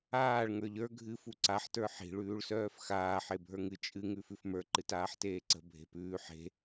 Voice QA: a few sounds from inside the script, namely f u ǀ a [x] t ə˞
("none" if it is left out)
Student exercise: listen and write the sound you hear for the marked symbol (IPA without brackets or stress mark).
ħ